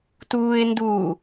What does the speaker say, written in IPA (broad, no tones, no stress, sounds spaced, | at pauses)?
t uː ɪ̯ n d u